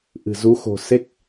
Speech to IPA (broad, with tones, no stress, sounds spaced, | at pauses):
ʔ ɨ̤˨˩ z u˨˦ x o̤˨˩ s e˦˥ k̚